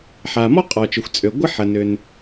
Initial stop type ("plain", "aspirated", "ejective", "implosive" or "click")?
ejective